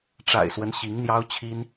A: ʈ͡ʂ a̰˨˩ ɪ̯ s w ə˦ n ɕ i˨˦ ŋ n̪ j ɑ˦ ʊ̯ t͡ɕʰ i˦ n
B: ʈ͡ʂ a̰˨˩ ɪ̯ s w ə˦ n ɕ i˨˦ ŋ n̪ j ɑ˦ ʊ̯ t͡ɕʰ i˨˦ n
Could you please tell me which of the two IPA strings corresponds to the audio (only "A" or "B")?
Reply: A